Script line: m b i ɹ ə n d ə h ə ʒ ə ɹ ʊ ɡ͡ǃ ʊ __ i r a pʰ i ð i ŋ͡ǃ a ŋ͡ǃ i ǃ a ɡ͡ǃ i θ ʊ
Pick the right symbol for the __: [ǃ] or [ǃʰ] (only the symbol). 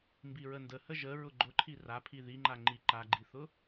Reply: ǃʰ